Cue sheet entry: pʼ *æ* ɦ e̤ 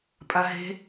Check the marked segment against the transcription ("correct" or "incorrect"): incorrect